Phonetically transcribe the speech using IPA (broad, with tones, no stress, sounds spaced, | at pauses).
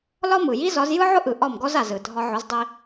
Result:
l ɒ˥ m ɯ˩ j i˥ z ɒ˩˥ z j ɯ˥ ʕ ʊ˥ ʔ ɯ˩ ʔ ɒ˥˩ m ɡ ɔ˥ z a˩ z ɯ˩ dʱ ɒ˧ ʕ ʊ˩˥ z dˤ i˧